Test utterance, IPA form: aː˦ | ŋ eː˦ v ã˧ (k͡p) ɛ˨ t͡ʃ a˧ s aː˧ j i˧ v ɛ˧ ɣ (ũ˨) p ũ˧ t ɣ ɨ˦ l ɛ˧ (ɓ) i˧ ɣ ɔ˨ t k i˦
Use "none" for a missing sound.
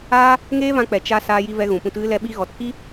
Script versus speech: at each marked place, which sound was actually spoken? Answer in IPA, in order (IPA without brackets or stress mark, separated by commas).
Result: k͡p, ũ˨, ɓ